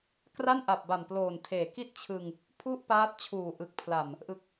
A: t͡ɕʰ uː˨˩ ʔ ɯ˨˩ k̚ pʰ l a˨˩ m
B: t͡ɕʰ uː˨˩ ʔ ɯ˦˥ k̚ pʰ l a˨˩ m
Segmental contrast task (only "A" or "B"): A